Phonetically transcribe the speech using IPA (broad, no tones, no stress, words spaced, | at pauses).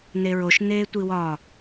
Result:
neɹoʃ neːtʷiwɒ